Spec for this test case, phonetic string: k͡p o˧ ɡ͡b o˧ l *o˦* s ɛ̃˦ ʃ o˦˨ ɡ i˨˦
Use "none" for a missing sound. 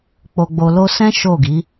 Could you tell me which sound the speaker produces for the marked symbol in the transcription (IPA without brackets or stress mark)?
o˦